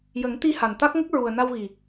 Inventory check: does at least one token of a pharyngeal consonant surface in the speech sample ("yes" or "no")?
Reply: no